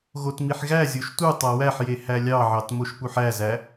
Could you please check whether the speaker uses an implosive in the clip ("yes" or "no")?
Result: no